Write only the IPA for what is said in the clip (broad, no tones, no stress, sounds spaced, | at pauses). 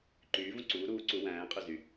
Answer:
ǃ yː v ũ ǀ uː ɾ uː ǀ u w æ̃ː qʼ ø z y